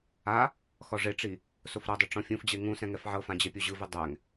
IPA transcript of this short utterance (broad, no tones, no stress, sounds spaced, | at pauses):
a | x ɔ ʐ e ʈ͡ʂ i | s o f ɾ ɤ dˤ o ʈ͡ʂ ɔ̃ fʲ ũ f d͡ʑ e ŋ ũ s ɛ̃ ŋ ɛ f ʕ ɤ f ã d͡ʑ e pʲ o ʑ ɯ v ɯ dˤ ɛ ŋ